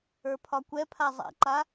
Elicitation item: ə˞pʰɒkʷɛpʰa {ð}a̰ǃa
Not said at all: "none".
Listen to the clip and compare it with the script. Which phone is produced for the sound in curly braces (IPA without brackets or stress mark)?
zˤ